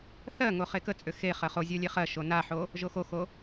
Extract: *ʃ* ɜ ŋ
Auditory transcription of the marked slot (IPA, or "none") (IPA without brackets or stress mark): θ